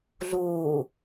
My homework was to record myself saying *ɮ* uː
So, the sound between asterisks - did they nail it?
yes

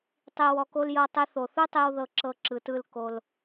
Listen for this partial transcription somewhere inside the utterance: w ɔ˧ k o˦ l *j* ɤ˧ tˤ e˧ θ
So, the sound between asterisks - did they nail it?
yes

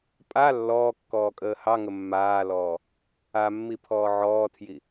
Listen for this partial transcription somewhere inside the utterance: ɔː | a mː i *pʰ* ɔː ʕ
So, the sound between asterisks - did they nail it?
yes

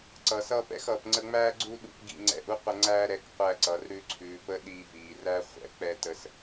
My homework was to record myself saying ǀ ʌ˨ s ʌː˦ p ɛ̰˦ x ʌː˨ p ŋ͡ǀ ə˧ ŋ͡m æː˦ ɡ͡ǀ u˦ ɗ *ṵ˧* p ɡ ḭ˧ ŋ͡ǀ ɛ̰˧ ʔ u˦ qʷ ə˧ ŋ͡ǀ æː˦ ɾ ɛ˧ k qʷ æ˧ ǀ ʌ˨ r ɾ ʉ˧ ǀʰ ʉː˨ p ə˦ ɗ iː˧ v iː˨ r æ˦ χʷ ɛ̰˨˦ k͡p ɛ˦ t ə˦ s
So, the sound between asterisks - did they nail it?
yes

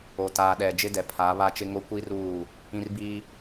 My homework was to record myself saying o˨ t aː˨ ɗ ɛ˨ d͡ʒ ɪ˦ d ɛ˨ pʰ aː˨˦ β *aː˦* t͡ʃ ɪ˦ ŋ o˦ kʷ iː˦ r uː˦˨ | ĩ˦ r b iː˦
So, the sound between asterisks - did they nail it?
no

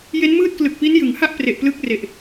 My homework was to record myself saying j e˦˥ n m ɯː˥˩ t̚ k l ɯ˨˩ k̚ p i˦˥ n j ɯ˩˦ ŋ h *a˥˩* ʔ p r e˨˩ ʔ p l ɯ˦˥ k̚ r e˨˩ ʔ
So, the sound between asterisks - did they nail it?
yes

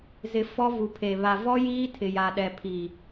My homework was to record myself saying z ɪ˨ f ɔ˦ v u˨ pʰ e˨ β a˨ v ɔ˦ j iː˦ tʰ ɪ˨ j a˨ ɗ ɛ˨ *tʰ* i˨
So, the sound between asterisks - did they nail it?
no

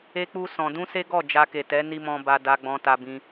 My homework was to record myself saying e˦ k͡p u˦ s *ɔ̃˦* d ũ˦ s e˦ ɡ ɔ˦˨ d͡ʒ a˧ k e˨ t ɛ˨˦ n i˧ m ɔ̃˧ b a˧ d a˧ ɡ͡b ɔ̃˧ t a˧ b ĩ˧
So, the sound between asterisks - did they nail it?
no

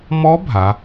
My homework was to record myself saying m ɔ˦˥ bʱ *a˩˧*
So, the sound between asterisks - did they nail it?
yes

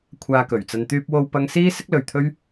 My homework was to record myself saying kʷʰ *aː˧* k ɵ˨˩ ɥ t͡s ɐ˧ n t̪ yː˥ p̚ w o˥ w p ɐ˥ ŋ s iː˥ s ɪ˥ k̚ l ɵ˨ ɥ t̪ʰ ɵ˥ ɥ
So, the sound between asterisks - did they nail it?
yes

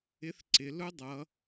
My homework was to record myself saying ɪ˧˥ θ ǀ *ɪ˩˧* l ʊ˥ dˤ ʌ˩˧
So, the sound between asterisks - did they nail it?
yes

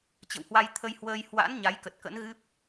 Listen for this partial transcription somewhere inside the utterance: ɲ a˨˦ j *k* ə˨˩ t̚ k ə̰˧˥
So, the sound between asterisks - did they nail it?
yes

